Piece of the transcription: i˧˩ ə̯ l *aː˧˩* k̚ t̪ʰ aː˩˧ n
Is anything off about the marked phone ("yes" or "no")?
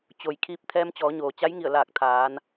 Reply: no